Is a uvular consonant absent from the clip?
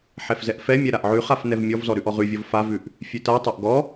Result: no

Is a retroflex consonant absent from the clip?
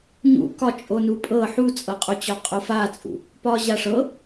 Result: no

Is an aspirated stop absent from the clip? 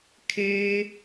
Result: no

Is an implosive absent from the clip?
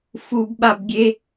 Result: no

